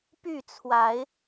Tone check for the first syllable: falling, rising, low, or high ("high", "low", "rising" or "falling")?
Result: falling